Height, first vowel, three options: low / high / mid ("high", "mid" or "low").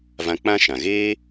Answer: low